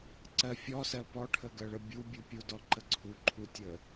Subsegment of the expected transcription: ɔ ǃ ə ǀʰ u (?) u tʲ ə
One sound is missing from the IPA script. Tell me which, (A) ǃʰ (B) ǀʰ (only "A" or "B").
A